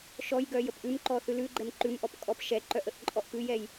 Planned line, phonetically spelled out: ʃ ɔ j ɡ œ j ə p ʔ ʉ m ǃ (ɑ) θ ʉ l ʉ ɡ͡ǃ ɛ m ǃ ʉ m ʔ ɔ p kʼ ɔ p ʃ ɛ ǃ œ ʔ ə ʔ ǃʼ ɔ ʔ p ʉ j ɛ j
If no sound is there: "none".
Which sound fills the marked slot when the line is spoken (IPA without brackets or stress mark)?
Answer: ɔ